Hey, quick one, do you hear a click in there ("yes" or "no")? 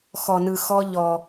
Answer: no